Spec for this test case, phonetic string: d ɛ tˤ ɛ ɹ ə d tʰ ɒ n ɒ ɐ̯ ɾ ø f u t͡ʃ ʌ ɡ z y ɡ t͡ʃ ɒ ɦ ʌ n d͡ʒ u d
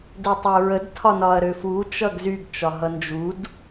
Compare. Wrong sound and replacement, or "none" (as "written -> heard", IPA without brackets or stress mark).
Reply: none